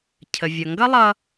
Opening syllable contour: low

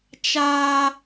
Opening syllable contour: high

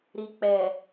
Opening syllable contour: low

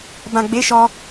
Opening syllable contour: low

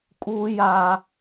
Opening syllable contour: high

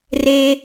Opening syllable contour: high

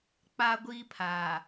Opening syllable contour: high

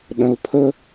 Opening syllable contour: low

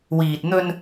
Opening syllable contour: low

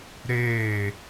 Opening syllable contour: falling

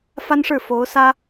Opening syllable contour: high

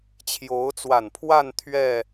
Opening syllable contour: rising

